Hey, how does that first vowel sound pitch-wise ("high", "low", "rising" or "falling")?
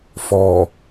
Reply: low